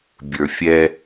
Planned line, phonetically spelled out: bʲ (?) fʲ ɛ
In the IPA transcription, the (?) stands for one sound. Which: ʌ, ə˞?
ə˞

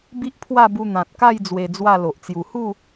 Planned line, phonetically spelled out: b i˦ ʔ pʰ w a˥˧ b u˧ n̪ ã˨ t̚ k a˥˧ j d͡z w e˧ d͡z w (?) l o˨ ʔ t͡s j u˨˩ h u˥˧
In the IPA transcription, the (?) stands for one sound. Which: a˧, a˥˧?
a˥˧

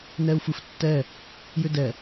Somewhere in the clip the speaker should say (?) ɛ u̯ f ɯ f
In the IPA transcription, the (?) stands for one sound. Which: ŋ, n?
n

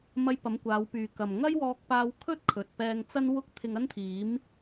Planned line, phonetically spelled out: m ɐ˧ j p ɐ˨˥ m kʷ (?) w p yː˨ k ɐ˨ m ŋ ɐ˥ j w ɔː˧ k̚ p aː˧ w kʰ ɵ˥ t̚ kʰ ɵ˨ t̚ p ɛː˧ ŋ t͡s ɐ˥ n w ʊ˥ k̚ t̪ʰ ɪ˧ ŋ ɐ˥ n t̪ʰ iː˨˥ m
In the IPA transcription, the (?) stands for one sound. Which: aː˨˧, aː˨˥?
aː˨˧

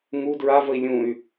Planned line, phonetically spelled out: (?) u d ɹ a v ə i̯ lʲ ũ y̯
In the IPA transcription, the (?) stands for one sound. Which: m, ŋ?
ŋ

